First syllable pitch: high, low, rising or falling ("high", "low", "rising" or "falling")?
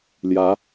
rising